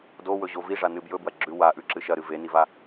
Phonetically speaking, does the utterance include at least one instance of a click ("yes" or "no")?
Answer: yes